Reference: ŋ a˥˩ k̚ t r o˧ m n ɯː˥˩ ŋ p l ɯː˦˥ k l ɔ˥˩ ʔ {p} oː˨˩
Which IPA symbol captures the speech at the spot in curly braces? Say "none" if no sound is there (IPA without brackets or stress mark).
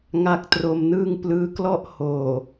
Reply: h